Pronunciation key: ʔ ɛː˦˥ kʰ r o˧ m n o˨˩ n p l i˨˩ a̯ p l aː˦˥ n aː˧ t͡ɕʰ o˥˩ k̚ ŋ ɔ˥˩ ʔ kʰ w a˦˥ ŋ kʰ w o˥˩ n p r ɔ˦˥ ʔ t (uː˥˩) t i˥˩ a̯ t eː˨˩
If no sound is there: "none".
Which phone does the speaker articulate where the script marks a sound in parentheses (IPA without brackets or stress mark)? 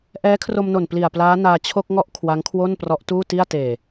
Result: uː˥˩